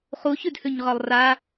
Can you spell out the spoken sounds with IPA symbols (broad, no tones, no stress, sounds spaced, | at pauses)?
χ u ç ʉ d h ʉ ɲ ʁ ɒ lˠ r a